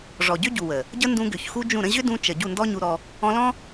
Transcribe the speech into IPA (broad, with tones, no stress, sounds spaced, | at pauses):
ʐ ɔ˨ ɟ ʏ˦ ɟ u˨ w ə˨ | ɟ ə˦ n d ũ˧ ɡ ʏ˨ ç x u˦ d͡ʒ ũ˦˨ ɾ ə̃˦ ʑ ʏ˦ d ũ˧ t͡ʃ ə˨ ɟ u˦˨ n d ɔ˦ ɲ u˧ ɾ ɔ˧ | ɔ̃˧ l ɔ̃˦